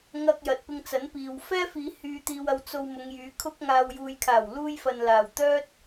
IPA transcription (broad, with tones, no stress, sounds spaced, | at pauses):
ŋ ɐ˧ k̚ j ɐ˨ t̚ p ɪ˧ ŋ t͡s ɐ˨˥ n p iː˨ w f ɛː˥ f iː˨˧ h yː˧ t̪ iː˧ w ɐ˧ w t͡s o˧ w m ʊ˨˧ ŋ j yː˨˥ kʰ ʊ˥ k̚ ŋ aː˧ w j uː˨ j kʰ aː˨˩ w l uː˧ j f ɐ˨ n l aː˨˩ w t̪ œː˥ t̚